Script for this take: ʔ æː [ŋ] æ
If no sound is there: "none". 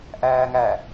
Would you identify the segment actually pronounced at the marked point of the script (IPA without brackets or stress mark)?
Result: ŋ